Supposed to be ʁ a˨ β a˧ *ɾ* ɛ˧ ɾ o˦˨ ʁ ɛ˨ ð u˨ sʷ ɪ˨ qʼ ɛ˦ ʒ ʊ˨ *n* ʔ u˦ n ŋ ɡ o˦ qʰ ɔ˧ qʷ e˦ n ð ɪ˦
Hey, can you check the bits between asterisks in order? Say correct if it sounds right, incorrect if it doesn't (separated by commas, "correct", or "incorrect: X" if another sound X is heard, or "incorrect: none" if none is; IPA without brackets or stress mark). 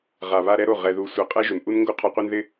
correct, correct